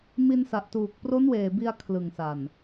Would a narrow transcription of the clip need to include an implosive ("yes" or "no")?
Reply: no